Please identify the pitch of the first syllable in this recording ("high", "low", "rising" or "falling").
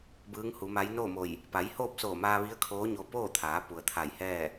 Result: rising